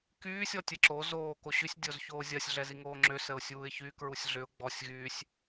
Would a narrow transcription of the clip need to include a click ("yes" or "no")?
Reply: yes